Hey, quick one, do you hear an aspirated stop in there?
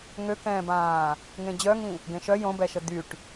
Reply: no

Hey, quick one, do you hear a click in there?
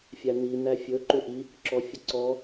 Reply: yes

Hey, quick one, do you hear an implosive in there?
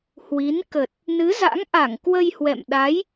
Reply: yes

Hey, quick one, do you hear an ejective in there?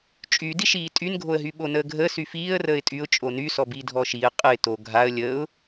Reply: yes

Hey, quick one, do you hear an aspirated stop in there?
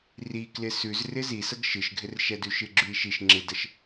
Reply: no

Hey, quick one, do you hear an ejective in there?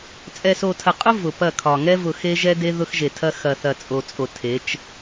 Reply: yes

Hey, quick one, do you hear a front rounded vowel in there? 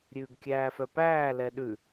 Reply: yes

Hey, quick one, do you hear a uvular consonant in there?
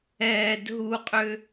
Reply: yes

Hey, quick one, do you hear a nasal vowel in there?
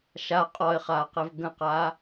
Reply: yes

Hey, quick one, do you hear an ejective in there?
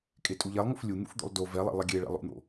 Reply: yes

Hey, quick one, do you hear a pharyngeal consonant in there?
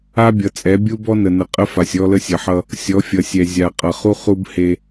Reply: yes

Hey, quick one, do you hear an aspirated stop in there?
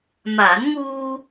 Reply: no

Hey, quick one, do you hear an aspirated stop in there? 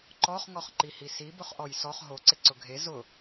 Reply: no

